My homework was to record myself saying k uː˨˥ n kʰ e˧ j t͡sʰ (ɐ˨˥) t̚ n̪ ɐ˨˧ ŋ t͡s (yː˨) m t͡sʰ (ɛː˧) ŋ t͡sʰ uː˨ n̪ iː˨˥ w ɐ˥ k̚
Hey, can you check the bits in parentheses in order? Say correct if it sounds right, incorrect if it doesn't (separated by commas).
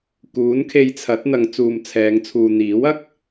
correct, incorrect, incorrect